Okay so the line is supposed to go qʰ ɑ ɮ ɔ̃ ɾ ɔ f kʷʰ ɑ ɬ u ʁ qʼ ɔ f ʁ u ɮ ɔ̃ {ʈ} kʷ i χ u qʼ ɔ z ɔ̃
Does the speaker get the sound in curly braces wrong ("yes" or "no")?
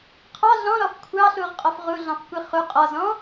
yes